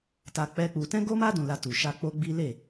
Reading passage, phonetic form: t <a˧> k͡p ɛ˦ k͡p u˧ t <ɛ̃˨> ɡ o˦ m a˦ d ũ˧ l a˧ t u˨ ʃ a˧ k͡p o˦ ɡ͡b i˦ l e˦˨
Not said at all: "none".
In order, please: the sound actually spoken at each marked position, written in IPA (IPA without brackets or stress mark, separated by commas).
a˧, ɛ̃˦